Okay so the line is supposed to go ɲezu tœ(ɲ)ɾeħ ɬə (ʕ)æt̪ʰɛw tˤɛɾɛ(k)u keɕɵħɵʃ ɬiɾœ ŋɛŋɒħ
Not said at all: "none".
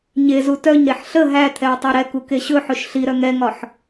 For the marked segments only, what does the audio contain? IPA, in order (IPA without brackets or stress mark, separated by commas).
ɲ, ɦ, k